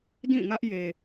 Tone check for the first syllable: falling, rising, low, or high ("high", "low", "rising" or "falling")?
falling